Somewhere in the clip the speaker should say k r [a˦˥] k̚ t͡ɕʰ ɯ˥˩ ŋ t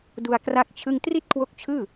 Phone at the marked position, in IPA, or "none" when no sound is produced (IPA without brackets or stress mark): a˥˩